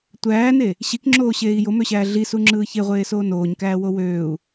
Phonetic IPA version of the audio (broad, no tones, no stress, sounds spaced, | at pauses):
tʷ æː n e | ɕ i k ŋ͡ǁ oː ɕ eː i̯ j o m ø ɕ æː ɮ i s u ŋ͡ǁ ɯː ç e ʁʷ eː s oː n oː ɲ k æː w o w øː u̯